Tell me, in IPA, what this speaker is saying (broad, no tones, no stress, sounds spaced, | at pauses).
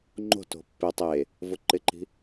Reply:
ŋ͡ǃ o̤ t o̤ pː ɪ tˤ e | v ʊ ǃ ɪ ǃ i̤